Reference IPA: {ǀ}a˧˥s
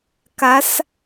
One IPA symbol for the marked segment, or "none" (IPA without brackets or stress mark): k